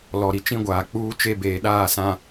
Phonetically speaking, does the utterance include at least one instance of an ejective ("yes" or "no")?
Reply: no